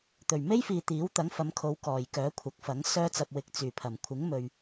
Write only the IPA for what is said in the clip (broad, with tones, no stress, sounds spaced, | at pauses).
t̪ ɵ˨˩ ɥ m e˥ j f iː˨ t̪ iː˨˥ w t̪ ɐ˨˥ ŋ f ɐ˨˧ m kʰ o˨˧ w k ɔː˨˩ j k œː˨˥ kʷʰ ɐ˨˥ k̚ f ɐ˨˥ ŋ s œː˧ t͡s ɐ˨ p̚ w ɪ˨˥ k̚ t͡s yː˨˩ pʰ ɐ˨˩ m kʷʰ ɪ˨˥ ŋ m ɵ˨ ɥ